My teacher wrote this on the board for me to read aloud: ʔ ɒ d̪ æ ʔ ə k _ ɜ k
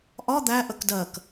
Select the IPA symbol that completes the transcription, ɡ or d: d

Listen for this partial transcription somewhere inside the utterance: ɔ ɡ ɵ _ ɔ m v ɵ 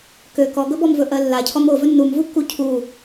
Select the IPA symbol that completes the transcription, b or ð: b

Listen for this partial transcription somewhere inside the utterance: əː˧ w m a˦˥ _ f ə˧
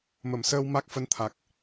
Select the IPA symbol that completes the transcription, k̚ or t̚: k̚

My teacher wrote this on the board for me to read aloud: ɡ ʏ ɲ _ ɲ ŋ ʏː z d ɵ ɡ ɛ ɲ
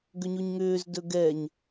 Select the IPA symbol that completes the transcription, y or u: u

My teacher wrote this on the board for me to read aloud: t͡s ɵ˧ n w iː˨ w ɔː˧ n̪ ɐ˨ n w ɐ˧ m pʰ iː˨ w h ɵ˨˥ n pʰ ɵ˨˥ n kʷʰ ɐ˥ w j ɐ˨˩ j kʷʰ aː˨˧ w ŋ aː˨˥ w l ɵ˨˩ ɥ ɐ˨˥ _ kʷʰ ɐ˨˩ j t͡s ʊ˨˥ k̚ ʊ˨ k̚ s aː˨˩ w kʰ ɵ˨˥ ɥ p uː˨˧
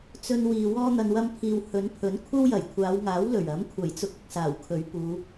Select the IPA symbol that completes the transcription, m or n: m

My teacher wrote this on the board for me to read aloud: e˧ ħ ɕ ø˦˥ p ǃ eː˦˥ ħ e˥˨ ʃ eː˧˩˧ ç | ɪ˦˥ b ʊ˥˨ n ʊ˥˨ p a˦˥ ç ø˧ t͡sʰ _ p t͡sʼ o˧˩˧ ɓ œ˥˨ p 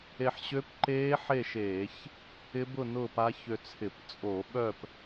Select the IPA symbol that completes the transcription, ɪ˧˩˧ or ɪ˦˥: ɪ˧˩˧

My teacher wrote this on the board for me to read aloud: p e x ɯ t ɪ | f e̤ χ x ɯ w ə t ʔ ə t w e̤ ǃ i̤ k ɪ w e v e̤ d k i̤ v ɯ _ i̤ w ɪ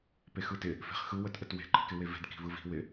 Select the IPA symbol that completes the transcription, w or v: v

